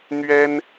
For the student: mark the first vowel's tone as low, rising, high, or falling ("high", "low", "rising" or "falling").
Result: high